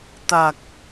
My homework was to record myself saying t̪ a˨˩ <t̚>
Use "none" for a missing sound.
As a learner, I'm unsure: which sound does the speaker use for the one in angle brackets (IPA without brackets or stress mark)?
k̚